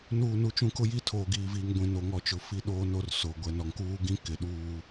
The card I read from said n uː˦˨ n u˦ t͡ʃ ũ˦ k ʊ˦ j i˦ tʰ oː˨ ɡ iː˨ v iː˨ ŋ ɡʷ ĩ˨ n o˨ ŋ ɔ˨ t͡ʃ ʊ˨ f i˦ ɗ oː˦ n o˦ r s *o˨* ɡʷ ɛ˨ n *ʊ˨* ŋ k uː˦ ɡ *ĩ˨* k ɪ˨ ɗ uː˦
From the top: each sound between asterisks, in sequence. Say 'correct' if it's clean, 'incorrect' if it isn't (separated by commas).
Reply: correct, incorrect, incorrect